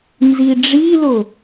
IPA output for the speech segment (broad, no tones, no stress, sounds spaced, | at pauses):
n z i ɖ͡ʐ i l ʊ